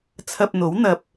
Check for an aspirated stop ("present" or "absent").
present